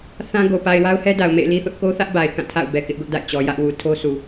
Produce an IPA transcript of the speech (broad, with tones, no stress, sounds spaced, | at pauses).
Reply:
θ ã˦ ɡ o˨ p a˨ ɪ̯ w a˦ ʊ̯ h ɛ˦ d a˨ ʊ̯ m ḛ˦˨ ɪ̯ l i˦ θ ʊ˦ ʔ k o˦ θ ä˦ ʔ b a˨ ɪ̯ k ã˦˨ tʰ a̰˦˨ ʊ̯ b ɛ˨ k ɪ˦ ʔ ɡ ʊ˦ ʔ d a̰˦˨ ɪ̯ t͡ɕ ɔ˨ j ä˦ ʔ w u˨ tʰ o˦ s u˨